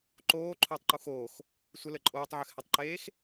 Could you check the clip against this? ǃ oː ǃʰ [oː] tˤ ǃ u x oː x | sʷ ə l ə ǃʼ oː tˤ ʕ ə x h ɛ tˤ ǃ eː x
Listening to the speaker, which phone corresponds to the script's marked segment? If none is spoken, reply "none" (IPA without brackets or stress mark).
oː